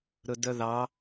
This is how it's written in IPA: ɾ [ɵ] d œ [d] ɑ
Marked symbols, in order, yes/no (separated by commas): yes, no